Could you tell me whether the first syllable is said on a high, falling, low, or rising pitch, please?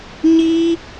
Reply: high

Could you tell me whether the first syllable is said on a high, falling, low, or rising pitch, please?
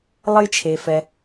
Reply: high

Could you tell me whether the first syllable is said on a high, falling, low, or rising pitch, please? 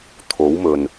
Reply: rising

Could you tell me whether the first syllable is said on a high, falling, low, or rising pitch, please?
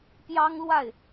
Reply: high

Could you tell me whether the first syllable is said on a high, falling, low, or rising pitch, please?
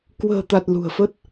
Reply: low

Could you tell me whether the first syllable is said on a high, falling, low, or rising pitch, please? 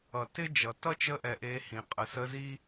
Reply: low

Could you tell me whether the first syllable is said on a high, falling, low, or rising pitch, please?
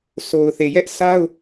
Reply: low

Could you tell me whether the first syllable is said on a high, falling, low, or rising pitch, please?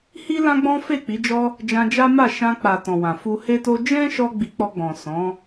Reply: high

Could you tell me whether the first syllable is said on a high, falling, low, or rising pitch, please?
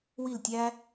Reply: falling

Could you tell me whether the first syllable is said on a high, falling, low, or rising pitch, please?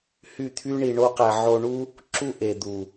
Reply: falling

